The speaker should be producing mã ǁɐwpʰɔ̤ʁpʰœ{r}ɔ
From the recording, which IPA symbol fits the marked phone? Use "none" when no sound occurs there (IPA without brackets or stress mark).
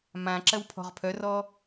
r